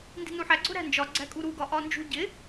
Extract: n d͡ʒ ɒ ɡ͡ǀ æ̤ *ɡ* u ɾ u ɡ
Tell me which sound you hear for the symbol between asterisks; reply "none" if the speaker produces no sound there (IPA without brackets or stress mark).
kʼ